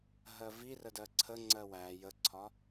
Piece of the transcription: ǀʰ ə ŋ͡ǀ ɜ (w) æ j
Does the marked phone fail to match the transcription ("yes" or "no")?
no